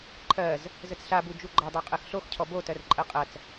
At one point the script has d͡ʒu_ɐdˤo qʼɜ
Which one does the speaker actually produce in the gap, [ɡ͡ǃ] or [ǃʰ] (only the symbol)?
ɡ͡ǃ